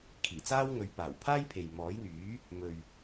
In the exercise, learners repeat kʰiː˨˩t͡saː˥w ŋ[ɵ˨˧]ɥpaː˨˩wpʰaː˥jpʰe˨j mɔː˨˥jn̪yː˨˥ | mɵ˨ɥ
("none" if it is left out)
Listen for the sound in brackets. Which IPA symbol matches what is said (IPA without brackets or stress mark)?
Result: ɵ˨˧